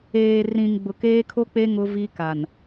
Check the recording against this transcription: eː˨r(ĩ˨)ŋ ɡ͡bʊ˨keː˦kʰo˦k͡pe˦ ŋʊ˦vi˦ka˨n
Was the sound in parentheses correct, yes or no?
yes